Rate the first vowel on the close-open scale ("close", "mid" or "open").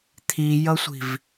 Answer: close